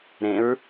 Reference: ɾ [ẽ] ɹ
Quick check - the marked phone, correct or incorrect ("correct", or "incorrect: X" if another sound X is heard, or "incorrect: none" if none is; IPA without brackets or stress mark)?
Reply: correct